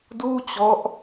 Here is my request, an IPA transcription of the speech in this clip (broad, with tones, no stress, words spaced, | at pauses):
duː˥˩t͡ɕɔ˦˥ʔ